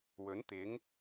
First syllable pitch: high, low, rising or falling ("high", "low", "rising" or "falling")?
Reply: rising